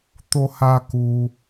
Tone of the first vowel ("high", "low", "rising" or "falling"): high